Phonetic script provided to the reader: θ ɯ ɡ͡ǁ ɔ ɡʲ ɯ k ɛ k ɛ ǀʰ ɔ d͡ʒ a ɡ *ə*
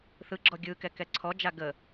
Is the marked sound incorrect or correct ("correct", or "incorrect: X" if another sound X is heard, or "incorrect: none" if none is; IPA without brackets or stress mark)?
correct